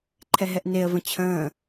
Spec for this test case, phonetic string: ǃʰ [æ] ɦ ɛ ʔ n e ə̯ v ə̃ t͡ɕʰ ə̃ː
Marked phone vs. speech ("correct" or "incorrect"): incorrect